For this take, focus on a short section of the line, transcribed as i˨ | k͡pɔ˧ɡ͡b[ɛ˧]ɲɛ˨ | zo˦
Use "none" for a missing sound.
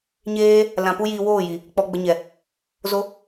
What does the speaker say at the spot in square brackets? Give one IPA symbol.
ə˧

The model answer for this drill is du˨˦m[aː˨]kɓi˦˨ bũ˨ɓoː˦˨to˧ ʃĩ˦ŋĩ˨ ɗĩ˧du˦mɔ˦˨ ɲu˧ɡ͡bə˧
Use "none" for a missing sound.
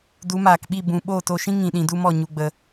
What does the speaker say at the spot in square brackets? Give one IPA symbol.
aː˨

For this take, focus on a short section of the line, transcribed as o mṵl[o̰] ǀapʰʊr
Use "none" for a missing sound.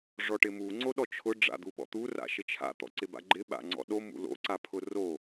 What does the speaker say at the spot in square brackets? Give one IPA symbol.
o̰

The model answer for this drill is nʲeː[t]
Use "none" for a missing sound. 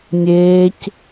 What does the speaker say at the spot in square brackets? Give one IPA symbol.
c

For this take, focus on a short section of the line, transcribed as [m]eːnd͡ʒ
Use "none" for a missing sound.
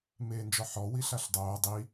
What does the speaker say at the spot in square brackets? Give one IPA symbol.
m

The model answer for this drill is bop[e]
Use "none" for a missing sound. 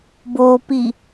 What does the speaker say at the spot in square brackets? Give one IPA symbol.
i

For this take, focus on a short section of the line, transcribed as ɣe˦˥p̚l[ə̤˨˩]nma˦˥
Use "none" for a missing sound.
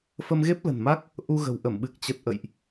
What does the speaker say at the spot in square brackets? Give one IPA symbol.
ə̤˨˩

